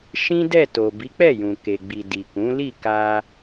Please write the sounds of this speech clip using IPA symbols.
ʃ ĩ˦ d ɛ˦˨ t o˨ b i˨˦ k͡p ɛ˦˨ j ũ˨ k e˨ ɡ͡b i˨ d i˨ k ũ˨˦ l i˦˨ k a˧

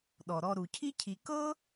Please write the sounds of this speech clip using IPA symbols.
ɗ ɔ˩ ɾ ɔ˨ ɾ u˩ cʰ i˥ cʰ i˨ k ɤ˥

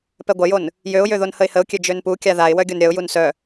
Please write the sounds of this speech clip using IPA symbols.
p ɛ ɡʷ ɐ j o n | j ø ʊ̯ j ø ð o n h ə ɪ̯ h ə ʊ̯ kʲ ø d͡ʒ ø n p u kʲ a ð a ɪ̯ w œ ɡʲ o n ɾʲ ɐ ʊ̯ j u n s œ

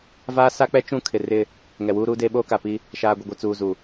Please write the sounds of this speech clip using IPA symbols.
v aː˦ s a˦ k͡p ɛ˦ t͡ʃ ũ˦˨ kʰ ɪ˨ r ɪ˦˨ | ŋ ɛ˨ w uː˦ ɾ uː˦ d eː˦ ɓ oː˦ k a˨ p i˦ | ʃ aː˨ ɡʷ ɪ˨ ɡʷ ɛ˨ t͡s uː˨ z u˨

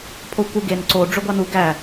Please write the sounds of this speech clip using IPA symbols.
pʰ o kʷ ɯ ɡ e n ǀ o ɖ͡ʐ ø ɡʷ ɑ n u ɡ æ

